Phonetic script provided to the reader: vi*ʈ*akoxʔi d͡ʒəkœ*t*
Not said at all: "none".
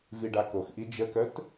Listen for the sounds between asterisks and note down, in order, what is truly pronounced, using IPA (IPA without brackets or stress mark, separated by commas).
ɖ, t